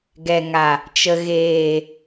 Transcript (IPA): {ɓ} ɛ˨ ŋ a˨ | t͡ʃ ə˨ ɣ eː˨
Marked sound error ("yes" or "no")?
yes